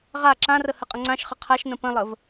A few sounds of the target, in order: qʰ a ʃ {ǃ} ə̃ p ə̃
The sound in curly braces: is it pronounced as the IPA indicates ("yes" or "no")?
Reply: no